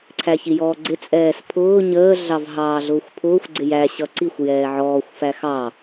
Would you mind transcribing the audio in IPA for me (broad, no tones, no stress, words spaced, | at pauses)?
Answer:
ǀʰæçijɔːɡ͡ǀɪ t͡sʼɛːspʰʊː ɲəː ɮɑvɦɑːɮʊːxʷpʰʊːxʷ ɡ͡ǀɪjæ ɕʌǀixʷ jɛːʕɔːxʷ fæxɑ